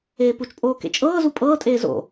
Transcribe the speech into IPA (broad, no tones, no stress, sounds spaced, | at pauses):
eː p u t͡ʃ pʼ oː k ḛ t͡ʃʼ ɤː z u pʼ ɤː tʼ eː z o̰